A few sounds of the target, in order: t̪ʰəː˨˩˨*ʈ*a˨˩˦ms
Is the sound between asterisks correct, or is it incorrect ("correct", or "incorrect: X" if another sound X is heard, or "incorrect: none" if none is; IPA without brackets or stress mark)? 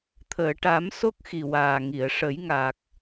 correct